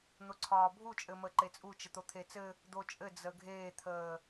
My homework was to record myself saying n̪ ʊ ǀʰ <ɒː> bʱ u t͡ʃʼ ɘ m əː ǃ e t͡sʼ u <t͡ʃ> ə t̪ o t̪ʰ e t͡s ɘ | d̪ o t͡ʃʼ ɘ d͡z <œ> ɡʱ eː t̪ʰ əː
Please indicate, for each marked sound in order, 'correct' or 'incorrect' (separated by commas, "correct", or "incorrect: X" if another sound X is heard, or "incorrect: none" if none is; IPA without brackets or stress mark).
correct, correct, incorrect: ə